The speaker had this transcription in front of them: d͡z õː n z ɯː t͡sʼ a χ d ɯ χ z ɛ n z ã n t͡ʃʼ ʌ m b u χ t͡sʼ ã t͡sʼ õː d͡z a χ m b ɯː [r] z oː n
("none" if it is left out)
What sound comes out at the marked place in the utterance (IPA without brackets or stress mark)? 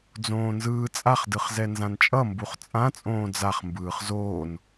χ